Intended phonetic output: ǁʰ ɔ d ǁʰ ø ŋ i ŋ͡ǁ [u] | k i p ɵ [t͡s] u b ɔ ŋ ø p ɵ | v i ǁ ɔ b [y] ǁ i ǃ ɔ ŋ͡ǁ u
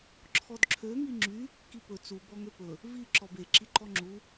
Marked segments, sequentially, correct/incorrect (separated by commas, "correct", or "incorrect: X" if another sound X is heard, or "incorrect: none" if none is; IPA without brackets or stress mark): incorrect: y, correct, incorrect: e